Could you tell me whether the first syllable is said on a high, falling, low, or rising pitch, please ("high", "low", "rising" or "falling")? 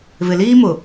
low